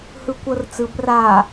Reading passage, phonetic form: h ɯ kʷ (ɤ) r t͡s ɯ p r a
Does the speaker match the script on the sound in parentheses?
yes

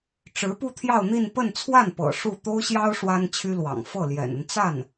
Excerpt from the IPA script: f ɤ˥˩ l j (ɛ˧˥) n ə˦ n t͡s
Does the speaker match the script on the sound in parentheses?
no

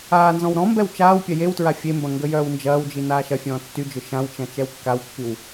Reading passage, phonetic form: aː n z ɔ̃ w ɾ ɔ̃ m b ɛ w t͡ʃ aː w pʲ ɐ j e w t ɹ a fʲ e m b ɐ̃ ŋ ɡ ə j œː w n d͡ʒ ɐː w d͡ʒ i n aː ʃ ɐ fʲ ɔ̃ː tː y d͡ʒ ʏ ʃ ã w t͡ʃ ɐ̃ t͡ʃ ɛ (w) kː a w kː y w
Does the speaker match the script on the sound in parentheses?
yes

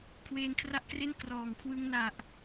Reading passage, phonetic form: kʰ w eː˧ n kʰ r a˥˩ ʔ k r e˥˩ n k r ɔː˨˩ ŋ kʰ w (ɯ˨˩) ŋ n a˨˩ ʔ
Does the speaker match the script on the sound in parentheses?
no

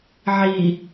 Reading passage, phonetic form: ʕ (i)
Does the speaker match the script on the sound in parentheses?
yes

